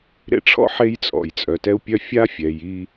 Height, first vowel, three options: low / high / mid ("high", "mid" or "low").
mid